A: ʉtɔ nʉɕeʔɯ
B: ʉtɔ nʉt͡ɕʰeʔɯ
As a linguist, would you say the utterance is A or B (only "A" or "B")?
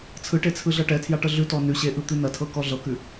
A